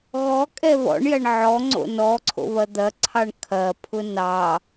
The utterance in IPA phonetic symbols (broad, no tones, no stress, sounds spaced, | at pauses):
ɣ ɔ kʼ ɛ β ɔ̰ ɳ j ɐ ɳ ʕ ɔ ŋ͡ǀ o̰ n ɔ ǀʰ o̰ β ɐ d̪ ɐ ǀʰ ɑ ɳ kʰ ɐ pʰ ʊ n ɑ